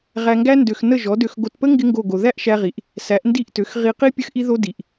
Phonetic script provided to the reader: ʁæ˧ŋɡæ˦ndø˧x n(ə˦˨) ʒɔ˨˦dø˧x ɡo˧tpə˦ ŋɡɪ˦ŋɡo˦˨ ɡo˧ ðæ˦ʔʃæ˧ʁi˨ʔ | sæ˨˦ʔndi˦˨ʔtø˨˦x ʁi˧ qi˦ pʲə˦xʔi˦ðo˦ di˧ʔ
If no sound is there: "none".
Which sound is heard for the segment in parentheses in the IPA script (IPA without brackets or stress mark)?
ə˦˨